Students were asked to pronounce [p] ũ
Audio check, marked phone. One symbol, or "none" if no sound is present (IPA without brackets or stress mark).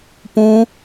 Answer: p